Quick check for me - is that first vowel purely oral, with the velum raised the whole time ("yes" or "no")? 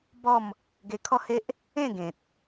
yes